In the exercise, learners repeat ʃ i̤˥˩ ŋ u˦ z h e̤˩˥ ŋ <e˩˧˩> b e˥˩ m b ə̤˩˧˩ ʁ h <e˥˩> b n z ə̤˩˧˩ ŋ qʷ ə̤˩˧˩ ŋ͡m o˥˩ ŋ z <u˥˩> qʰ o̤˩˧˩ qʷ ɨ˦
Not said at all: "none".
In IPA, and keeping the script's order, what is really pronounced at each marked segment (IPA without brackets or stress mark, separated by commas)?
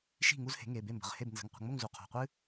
e˩˧˩, e˥˩, u˩˧˩